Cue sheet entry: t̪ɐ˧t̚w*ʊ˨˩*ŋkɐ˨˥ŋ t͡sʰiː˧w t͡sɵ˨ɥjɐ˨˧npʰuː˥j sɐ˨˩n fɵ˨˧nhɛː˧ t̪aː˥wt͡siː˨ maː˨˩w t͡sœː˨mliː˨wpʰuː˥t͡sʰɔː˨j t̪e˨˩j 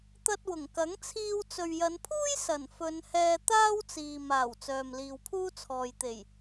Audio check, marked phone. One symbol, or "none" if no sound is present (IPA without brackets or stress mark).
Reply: ʊ˨˩